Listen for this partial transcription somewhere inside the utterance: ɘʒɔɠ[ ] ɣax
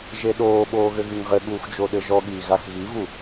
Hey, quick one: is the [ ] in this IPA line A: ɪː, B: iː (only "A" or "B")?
B